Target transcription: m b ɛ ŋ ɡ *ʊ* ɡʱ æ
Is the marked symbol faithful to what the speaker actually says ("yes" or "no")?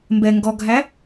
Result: no